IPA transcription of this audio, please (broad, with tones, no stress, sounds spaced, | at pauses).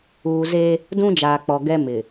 uː˨ z e˦ | d ũ˦ d͡ʒ aː˨ k͡p ɔ˨ ɡ ɛ˦ m ɪ˨